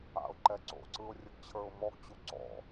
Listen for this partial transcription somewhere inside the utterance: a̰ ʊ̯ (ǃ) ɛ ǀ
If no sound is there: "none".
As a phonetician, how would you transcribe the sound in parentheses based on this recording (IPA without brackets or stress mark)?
ǃ